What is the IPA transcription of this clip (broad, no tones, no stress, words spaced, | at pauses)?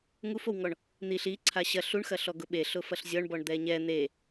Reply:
ŋufowŋɔɳ | n̪iɬ i ǀʰaɕɐ ɬuɳxɐɬɔ ɡʊɓe ɬʊfɐɬzʲɔɳbɔɳ d̪ɛɲɛ n̪e